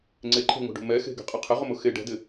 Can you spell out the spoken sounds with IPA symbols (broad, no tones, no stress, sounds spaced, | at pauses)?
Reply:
ŋ͡ǀ e ǃʰ e̤ ŋ o̤ ɖ ṳ m ɛ x e̤ ɡ e̤ qʼ ɪ qʰ ɪ ʁ ʊ m ʊ x e ɖ ɛ̤ d ɪ